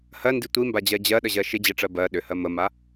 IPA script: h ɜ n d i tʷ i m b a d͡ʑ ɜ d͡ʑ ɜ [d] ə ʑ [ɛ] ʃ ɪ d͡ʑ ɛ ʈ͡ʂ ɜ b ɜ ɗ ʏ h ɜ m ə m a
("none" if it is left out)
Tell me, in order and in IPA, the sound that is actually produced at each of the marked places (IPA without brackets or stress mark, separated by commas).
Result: ɗ, ɜ